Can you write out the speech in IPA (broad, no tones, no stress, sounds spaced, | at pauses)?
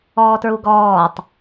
ɔː t ɹ u ɡ ɔː tˤ